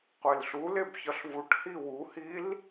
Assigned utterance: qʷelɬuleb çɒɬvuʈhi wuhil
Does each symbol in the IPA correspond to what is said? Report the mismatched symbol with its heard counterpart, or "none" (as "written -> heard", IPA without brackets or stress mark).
none